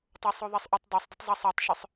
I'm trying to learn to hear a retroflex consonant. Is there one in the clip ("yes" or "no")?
no